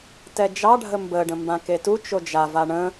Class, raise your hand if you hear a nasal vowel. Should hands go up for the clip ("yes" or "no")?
yes